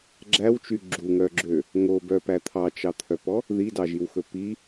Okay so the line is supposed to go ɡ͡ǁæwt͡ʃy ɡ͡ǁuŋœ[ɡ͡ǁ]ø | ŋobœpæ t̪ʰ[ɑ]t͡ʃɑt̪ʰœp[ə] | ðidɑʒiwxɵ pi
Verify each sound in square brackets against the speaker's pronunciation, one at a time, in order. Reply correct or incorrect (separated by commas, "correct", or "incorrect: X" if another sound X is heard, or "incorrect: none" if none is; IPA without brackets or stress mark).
correct, correct, incorrect: ɔ